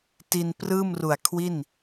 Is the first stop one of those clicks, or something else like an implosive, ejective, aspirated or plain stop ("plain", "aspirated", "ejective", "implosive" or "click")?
plain